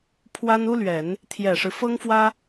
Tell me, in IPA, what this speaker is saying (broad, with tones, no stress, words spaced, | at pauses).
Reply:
pʰwa˥n u˥lɥɛ˨˩˦n | t̪ʰjɛ˨˩ʂɻ̩˦ fɤ˥ŋfwä˥